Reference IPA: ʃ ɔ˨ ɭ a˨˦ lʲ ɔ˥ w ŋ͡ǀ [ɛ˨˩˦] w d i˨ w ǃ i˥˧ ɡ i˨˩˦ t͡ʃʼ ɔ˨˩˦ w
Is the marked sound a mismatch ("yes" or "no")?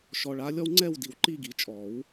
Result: yes